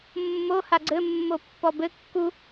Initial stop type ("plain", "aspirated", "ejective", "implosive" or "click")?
click